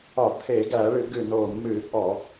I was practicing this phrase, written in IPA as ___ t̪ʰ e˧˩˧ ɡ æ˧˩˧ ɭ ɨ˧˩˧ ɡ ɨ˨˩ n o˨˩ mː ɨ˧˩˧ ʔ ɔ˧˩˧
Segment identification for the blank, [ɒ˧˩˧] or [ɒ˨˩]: ɒ˧˩˧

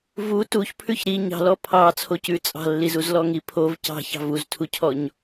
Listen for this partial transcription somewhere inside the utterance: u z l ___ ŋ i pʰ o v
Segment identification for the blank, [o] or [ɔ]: ɔ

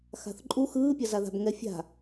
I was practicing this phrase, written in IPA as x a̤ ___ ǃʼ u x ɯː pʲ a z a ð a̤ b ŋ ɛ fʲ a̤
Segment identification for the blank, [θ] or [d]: θ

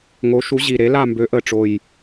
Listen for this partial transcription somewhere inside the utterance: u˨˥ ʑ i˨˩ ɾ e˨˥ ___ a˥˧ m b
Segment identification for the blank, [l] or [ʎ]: l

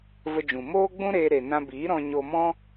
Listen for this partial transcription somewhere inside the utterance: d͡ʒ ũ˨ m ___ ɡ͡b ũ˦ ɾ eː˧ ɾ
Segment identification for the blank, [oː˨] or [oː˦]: oː˦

